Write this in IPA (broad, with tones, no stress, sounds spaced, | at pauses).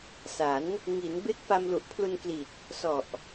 s a˩˦ n | ŋ i˩˦ n b e˦˥ k̚ f a˧ m l u˨˩ ʔ pʰ l u˧ n k l i˨˩ t̚ | s ɔ˨˩ ʔ